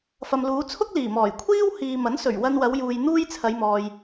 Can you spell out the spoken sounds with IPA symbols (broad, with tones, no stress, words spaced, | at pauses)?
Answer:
fɐ˨mluː˨˧t͡sʰʊ˥k̚ liː˨˩mɔː˨˩j kʷʰiː˥w hiː˨mɐ˨˥nsɵ˨˩ɥ wɐ˧nwɐ˨˧wjuː˨j n̪uː˥jt͡sʰɐ˨˧jmɔː˨j